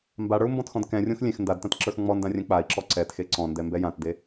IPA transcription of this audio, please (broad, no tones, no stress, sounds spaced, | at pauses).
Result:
m b a ɽ ə˞ u̯ m b ɔ̃ t x ɔ̃ d k ɛ̃ rʲ õ x lʲ ẽ x n d a d t ã t ǁ ə˞ x ŋ͡m ɔ n d ã rʲ ɛ̃ k͡p a i̯ ǁ ɔ ǀ ɛ t x e ǀ ɔ̃ n d ɛ m b ɛ j ã t d e